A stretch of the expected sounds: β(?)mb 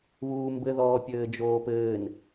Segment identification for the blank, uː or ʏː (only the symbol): uː